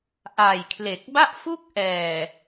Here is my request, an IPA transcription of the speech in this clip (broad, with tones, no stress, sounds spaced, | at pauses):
ʔ aː˨˩ j kʰ l e˨˩ k̚ b a˥˩ ʔ f u˥˩ k̚ ʔ ɛː˨˩